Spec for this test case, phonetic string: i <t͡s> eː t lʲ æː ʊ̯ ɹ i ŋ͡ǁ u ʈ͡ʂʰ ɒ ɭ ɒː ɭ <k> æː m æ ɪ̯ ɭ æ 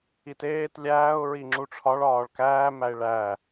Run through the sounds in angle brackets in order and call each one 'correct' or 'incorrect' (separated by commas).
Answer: incorrect, correct